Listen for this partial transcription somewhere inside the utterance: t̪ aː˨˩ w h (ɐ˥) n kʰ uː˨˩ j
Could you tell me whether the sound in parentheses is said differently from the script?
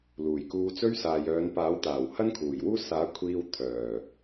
no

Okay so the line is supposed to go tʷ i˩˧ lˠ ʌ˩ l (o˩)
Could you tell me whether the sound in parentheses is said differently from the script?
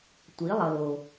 no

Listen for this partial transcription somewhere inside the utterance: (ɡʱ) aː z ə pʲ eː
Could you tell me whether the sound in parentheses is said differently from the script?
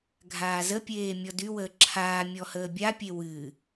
no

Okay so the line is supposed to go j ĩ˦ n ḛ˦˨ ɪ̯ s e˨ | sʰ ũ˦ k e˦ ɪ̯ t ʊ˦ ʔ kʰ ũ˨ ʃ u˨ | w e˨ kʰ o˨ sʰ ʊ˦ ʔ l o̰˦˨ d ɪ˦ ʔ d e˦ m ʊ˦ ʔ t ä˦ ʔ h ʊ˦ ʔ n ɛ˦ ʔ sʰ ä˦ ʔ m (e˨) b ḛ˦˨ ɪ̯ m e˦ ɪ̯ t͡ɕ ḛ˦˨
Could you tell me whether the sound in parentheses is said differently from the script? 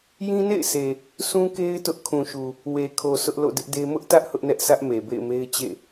no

